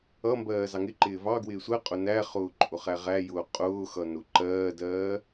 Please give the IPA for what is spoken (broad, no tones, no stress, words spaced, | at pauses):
ʌmbɜː zɑŋɪǃɪː vɑɡwɪː sʷɜqʼʊ næχʊː ǃʼʊχæʁæjʊː qʼʊːxʌ nʊ ǃɜːdɜː